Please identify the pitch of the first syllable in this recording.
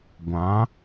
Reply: rising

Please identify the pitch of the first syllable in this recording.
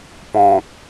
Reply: low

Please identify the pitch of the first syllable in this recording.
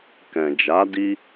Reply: low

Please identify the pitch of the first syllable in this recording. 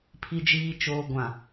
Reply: low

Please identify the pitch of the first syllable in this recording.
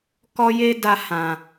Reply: high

